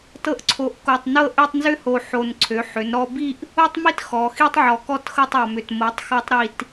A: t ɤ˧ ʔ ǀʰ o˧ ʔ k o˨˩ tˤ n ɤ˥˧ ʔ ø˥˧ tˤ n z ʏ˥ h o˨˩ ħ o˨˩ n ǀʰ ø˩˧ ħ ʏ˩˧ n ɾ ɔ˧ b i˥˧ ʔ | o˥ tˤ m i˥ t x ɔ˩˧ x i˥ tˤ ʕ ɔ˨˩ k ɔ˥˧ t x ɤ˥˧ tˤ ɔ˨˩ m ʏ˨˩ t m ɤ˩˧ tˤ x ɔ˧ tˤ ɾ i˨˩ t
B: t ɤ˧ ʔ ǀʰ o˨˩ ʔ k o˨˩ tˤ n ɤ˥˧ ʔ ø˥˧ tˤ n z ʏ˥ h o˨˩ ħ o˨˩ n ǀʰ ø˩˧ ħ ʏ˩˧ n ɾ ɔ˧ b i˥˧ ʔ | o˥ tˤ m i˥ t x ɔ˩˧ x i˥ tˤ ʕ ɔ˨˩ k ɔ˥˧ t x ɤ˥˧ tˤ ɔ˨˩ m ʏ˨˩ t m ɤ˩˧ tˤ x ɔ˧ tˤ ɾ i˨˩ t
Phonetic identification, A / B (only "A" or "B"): B